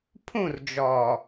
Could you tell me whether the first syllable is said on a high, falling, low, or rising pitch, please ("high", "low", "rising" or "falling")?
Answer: falling